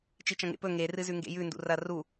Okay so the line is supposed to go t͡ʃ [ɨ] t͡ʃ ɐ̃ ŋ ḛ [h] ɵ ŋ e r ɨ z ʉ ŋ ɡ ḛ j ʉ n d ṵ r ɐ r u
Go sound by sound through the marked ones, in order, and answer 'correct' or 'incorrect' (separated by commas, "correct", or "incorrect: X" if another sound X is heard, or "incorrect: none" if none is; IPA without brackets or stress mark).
incorrect: i, incorrect: p